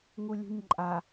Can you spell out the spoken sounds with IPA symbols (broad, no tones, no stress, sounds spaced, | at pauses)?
ŋ u lʲ ṳ ɲ ǃʼ a